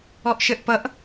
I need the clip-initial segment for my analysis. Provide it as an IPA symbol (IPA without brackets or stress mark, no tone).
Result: ɔ